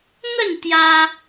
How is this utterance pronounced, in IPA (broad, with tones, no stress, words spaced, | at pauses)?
n̪ə˥˧n t̪ja˧